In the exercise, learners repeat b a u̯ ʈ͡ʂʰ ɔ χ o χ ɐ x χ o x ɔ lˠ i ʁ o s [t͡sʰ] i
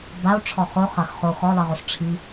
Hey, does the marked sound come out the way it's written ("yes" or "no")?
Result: no